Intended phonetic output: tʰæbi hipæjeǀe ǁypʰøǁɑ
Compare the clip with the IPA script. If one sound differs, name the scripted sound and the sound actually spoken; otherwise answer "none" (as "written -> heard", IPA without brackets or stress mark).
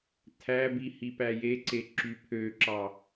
none